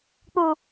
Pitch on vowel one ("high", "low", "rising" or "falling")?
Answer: low